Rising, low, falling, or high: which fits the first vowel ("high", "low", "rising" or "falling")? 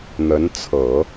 rising